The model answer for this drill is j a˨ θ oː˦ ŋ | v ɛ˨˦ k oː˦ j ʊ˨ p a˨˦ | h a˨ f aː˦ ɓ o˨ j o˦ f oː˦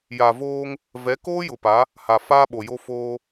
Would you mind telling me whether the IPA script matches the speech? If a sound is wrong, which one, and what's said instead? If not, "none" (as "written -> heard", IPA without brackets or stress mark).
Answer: θ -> v